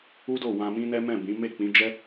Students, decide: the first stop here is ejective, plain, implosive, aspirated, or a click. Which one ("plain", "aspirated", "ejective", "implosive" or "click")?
plain